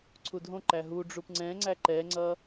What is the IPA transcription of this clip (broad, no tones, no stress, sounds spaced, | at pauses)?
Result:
ǀʰ u dʱ õ ǃ æ ɦ u ɖ͡ʐ u p ŋ͡ǀ ɛ̃ ŋ͡ǀ æ ǃ ɛ ŋ͡ǀ ʌ